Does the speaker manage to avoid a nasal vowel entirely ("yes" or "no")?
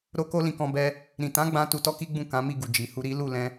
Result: no